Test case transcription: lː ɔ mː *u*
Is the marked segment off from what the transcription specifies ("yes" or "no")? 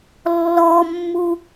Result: no